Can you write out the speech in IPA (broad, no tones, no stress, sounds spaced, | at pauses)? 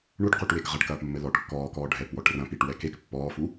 ɳ u ʈ q u ʈ w e k ʁ ɐ ʈ k ɐː p mː ɘ l ɔ ʈ kː ɔː k ɔː ɖʱ ɛ p w ɔ ʈ r ɐ̃ p i ʈ w ɛ k e k pː ɔː f u